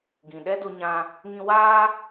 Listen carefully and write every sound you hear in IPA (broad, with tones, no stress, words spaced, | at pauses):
ɡĩ˨ɗɛ˦ do˧ɲã˧ | ŋĩ˧waː˦